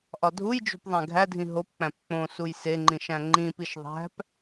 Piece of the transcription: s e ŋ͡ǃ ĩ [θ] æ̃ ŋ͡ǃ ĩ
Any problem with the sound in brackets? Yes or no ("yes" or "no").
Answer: yes